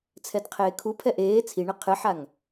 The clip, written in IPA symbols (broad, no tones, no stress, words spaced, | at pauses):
t͡sʰɛdqʰeːkʰupʰɛ ʔeː t͡sʰiɳɘ qʰɨħaŋ